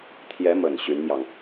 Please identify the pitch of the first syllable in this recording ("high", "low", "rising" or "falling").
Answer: rising